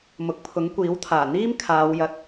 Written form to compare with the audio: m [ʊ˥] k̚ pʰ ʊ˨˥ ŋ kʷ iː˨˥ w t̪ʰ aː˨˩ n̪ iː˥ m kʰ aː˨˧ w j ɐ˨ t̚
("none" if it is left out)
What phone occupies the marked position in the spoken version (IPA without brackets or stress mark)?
ʊ˨